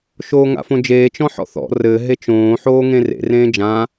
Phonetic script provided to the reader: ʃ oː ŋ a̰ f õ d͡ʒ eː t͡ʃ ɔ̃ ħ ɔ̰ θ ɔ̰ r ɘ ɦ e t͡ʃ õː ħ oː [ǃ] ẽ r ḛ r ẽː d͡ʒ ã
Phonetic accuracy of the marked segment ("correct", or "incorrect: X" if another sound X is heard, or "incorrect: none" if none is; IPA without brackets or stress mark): incorrect: ŋ